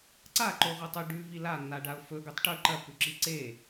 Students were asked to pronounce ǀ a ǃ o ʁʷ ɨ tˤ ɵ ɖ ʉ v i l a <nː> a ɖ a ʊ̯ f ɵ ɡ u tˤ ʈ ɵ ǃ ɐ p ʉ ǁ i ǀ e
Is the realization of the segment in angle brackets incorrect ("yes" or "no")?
no